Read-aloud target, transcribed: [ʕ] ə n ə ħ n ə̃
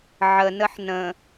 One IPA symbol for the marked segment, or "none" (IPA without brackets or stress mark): ʕ